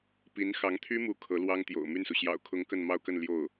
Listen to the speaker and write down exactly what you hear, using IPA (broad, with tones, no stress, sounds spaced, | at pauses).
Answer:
p i˧˥ n x ɑ˧˥ ŋ t̪ʰ y˥ m u˧˥ kʰ ɤ˧˥ l w ɑ˥ ŋ t̪ j o̰˨˩ ʊ̯ m y˥˩ n s u˩ ɕ j ɑ̰˨˩ ʊ̯ kʰ ʊ˧˥ ŋ k ə˥˧ n m ɑ˥˧ ʊ̯ k ə˥˧ n l j o˥˩ ʊ̯